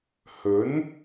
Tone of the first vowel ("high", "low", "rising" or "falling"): rising